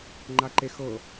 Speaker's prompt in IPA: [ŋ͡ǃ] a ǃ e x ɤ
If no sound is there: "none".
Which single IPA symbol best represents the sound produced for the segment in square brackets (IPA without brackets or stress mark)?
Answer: ŋ͡ǃ